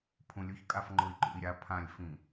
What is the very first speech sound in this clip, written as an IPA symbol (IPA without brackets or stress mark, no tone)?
pʰ